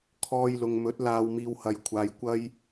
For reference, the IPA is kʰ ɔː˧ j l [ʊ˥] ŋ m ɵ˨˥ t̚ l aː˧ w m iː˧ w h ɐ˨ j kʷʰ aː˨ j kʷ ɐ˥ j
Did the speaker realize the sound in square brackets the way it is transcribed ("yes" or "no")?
no